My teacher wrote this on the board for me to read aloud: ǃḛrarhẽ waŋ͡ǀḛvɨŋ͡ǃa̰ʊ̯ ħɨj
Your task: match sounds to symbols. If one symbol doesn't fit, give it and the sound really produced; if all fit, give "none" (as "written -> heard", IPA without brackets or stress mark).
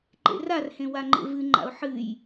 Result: ŋ͡ǀ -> ŋ͡ǃ